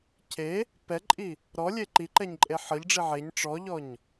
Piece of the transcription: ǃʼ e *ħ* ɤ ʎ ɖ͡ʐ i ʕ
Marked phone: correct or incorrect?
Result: correct